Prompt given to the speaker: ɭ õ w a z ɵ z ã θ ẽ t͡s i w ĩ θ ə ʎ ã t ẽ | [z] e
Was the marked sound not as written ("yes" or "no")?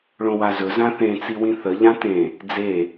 yes